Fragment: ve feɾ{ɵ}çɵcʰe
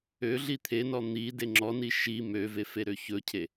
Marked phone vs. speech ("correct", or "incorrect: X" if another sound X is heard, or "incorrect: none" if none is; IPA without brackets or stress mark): incorrect: ø